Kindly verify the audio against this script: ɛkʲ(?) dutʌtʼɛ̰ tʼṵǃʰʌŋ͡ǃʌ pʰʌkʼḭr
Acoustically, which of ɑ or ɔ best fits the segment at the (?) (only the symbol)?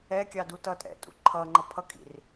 ɑ